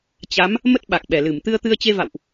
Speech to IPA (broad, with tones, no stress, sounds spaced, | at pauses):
t͡ɕ a˨˦ m | m ə˦˥ t̚ ɓ a˨˩ k̚ ɓ ɛ˧˩ l ɨ˧˩ m t̪ ɨ˧ ə̯ t̪ ɨ˧ ə̯ t͡ɕ e˧ v a̰˧˨ w ʔ